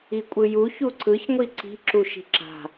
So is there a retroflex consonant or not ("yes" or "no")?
no